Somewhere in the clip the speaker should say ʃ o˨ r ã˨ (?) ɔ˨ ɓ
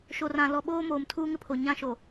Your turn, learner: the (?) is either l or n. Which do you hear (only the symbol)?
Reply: l